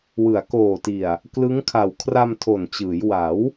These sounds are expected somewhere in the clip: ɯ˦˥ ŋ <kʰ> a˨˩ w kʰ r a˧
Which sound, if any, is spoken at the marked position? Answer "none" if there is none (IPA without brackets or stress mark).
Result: kʰ